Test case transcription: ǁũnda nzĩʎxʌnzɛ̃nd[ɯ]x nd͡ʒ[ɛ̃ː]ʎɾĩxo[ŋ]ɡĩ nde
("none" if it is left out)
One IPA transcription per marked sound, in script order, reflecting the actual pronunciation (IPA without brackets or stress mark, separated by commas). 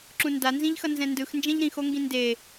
ɯ, ɛ̃, ŋ